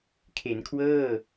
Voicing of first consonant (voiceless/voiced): voiceless